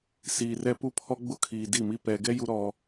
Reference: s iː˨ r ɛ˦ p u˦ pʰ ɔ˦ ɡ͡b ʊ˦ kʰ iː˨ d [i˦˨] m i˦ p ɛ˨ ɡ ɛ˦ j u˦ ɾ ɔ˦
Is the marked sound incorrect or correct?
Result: correct